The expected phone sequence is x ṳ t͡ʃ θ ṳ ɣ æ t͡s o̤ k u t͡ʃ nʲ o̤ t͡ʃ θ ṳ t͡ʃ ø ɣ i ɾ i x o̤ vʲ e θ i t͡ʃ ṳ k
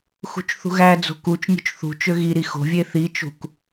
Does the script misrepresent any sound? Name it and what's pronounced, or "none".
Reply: t͡s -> d͡z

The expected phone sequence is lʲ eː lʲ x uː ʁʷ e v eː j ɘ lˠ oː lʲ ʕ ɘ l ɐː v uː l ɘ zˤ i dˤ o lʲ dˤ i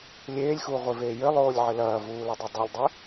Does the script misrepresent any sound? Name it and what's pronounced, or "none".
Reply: zˤ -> dˤ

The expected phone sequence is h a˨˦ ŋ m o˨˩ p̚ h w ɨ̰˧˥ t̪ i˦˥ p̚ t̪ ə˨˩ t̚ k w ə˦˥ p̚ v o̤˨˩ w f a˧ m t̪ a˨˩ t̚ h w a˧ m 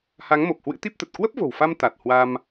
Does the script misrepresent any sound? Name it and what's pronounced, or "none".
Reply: none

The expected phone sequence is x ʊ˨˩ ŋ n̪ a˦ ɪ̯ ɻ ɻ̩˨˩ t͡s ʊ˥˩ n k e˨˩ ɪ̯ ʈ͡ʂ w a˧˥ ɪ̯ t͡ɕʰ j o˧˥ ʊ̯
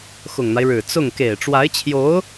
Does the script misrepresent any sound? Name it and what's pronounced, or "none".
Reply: n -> ŋ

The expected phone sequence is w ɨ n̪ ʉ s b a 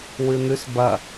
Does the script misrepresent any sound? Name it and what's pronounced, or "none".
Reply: a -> ɐ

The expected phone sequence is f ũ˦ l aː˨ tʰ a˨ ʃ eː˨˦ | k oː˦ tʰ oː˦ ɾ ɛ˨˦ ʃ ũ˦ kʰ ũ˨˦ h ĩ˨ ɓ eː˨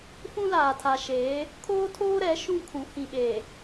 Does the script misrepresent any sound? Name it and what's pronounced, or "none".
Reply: k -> kʰ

